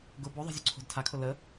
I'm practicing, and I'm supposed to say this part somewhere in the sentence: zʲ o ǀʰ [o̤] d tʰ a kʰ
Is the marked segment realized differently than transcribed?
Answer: no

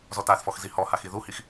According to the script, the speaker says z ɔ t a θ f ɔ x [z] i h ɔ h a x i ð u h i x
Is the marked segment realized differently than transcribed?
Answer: no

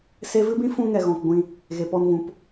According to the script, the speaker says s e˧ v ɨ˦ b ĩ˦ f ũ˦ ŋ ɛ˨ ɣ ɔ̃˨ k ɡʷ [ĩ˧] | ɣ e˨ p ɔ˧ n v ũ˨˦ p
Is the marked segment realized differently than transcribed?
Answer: no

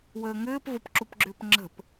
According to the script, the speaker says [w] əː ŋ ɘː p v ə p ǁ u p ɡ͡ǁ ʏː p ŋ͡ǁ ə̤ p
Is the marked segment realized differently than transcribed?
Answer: no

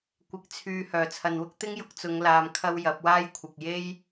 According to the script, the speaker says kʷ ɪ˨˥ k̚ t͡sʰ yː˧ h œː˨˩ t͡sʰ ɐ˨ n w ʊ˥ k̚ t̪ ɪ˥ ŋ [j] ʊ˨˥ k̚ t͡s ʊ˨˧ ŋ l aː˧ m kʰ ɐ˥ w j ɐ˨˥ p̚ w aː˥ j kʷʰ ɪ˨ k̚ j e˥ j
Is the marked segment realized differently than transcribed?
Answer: no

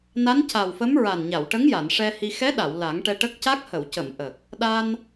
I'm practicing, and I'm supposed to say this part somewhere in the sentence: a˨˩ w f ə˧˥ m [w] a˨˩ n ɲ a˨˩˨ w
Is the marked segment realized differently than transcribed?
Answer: yes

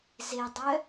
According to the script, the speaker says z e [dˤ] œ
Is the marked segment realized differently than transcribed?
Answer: no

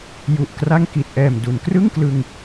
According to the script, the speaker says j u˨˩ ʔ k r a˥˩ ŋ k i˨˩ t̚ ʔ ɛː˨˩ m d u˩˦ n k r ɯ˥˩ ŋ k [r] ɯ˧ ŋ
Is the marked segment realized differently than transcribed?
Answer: yes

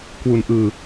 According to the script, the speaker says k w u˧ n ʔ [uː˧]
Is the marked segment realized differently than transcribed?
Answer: yes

